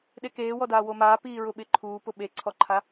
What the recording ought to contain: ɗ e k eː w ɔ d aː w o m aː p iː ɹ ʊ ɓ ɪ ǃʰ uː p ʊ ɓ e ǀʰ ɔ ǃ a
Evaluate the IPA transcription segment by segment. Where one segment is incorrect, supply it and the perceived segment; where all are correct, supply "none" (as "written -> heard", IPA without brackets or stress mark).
ǃ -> ǃʰ